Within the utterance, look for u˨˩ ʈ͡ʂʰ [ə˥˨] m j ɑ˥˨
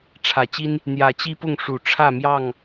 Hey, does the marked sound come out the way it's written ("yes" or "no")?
no